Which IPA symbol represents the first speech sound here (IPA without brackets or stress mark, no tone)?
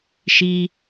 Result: ʃ